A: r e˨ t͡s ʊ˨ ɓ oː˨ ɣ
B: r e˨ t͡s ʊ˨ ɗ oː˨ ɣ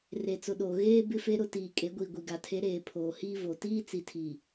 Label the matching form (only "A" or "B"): B